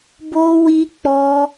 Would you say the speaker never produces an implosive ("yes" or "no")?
yes